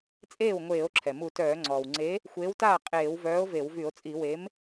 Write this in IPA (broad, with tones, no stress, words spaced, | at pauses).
t͡sʼeː˥˩wŋʷeː˧˩˧o̯ ǁʰɛ˩mu˧˩˧tœː˧˩˧ ŋ͡ǀɔː˩wŋ͡ǀe˨˥ | xʷeː˨˥wtaː˥˩ qʼeː˧˩˧wvœː˨˥o̯ ve˧˩˧w vy˧˩˧o̯t͡sʼi˧˩˧ we˨˥m